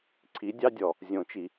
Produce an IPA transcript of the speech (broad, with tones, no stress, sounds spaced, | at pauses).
ǀʰ i˨˦ dʲ ɑ˦ dʲ ɔ˩ | zʲ õ˨˩˦ t͡ʃ i˩